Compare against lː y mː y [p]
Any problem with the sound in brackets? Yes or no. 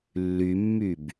yes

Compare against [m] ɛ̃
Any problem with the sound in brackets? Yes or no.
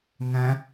yes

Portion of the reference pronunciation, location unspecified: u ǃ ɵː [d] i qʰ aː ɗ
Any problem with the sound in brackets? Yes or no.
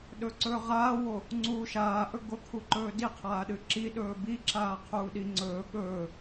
no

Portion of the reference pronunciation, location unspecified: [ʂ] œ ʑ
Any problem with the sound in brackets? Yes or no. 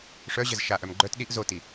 no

